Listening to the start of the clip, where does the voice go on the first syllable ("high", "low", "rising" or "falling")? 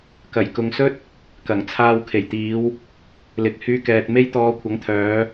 low